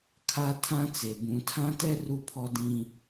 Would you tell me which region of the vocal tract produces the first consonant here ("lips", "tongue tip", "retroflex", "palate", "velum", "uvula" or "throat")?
velum